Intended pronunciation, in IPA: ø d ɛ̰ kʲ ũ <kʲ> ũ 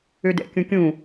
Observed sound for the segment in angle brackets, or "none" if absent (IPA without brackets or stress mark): kʲ